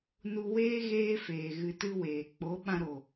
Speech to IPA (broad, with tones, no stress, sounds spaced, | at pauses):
n u˧ w eː˦ ɣ eː˦ f eː˨ ɣ ɨ˧ t ɨ˦ w eː˨ k͡p o˨˦ ɓ ã˧ ɾ o˨